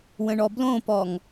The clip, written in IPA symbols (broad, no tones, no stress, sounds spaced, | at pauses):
w ə̃ ɳ ɔ b l õ p ɔ ŋ